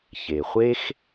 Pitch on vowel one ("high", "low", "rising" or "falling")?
low